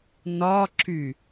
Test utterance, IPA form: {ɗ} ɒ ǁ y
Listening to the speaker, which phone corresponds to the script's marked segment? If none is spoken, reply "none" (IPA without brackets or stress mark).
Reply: n